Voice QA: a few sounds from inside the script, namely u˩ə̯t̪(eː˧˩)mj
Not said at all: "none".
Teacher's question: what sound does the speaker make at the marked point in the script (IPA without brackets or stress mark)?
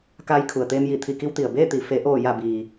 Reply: eː˧